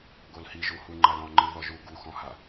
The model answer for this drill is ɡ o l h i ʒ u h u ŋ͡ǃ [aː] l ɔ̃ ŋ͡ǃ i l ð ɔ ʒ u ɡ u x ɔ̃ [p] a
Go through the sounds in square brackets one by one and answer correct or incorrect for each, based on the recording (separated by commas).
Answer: incorrect, incorrect